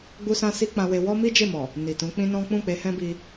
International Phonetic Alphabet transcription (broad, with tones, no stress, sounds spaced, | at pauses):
ɡ͡b u˦ s ã˦ s i˦ k͡p ã˧ w e˧ w ɔ˦ m i˦ d͡ʒ e˦˨ m ɔ˨ | n i˨ t ũ˨˦ k͡p ĩ˦ n ɔ̃˦ k͡p ũ˦˨ k͡p e˧ h ɛ̃˦ b i˧